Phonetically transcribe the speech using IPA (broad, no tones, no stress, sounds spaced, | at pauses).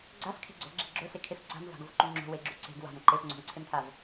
ɡ͡ǀ a f kʰ e̤ ɡ͡ǀ o̤ ɡ͡ǁ e̤ ɡ͡ǁ o s e kʰ e f ǀ a̤ m v a̤ ɡ o v ǃ u ŋ͡ǁ o̤ w e ɡ͡ǁ u ǀ e̤ ɡ w a̤ m ǃ e f ŋ͡ǀ o̤ m ǀʰ e m tʰ a v